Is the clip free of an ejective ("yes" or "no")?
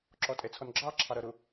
no